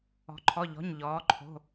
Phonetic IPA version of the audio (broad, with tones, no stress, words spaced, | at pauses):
ɔ̤˩˧ǃʰɔ˩˧˩ʎɔ̤˩˧˩ɲ ʎɔː˩˧ǃʰo̤˩˧˩